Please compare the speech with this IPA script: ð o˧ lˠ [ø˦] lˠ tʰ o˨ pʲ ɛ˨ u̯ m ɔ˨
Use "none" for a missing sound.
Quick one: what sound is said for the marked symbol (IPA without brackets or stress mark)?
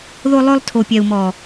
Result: ø˧